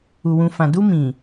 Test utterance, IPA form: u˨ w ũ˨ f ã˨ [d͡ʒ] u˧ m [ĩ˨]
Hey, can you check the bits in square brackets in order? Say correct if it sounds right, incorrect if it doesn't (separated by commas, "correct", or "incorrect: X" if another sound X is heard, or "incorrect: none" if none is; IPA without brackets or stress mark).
incorrect: d, correct